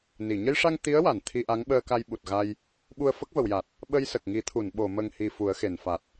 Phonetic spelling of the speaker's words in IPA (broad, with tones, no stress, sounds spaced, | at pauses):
n i˨˩˨ ɲ ə˧ j ʂ a˧ ŋ t̪ i˧˥ ə̯ w a˨˩˨ n t̪ʰ i˧ ʔ a˧˥ ŋ ɓ əː˧ k a˧ j ɓ u˨˩ t̚ ɣ a˧ j | ɓ u˧ ə̯ f ə˦˥ k̚ v ə˨˩˨ w j a˨˩ t̚ | ɓ ə˧ j s ə˨˩ k̚ ŋ i˨˩˦ t̪ʰ u˨˩˨ n ɓ o˨˩˨ m ə˨˩ ŋ h i˨˩ f u˨˩˦ ə̯ x e˨˩˨ n f a˨˩ t̚